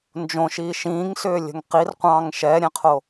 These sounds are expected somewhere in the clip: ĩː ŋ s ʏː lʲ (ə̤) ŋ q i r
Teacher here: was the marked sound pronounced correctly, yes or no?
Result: yes